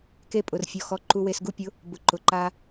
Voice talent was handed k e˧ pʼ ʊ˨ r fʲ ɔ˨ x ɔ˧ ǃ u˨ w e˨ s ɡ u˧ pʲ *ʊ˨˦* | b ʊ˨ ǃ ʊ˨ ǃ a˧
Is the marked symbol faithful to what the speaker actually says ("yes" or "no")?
yes